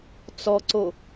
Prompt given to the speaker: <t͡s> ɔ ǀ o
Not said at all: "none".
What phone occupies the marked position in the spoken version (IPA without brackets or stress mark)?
t͡s